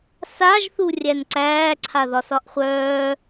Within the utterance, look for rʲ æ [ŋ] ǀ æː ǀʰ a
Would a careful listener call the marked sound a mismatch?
yes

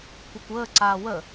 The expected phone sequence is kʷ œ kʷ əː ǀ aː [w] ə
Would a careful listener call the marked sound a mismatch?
no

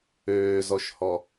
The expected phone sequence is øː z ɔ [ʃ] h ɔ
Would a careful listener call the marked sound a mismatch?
no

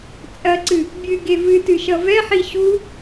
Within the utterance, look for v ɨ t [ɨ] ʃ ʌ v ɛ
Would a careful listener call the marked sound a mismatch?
no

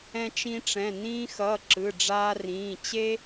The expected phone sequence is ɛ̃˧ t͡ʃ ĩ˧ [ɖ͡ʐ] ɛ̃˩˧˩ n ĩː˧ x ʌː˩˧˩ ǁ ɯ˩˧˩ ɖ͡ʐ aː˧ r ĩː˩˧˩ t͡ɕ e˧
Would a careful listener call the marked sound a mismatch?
yes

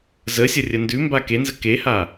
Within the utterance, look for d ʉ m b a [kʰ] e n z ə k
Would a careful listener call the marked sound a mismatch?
yes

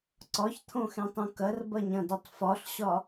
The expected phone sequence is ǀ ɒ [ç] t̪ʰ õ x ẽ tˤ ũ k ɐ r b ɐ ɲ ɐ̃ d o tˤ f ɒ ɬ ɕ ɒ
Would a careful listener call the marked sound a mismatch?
no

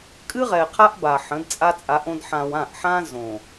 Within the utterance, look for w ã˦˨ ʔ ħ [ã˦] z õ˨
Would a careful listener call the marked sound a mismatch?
no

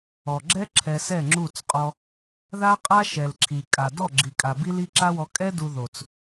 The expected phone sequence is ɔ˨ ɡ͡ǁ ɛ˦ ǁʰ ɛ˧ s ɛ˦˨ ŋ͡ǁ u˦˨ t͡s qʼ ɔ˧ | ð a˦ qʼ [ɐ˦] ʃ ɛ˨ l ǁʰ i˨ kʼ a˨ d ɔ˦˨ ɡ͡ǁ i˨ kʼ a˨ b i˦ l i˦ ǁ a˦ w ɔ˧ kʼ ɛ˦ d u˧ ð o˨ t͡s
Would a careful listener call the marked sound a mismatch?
yes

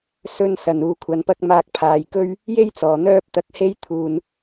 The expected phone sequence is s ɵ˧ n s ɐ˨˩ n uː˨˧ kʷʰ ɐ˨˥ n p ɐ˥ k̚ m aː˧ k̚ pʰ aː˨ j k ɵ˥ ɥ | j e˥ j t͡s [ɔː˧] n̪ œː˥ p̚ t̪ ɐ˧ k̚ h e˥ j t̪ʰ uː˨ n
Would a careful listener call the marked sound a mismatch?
yes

